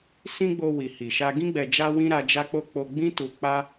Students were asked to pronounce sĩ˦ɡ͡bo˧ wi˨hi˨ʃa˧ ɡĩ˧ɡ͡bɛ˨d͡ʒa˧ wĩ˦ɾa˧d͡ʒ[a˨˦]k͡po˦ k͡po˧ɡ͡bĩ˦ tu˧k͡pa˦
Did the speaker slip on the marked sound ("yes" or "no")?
yes